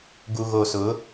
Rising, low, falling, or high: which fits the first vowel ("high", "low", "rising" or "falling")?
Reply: low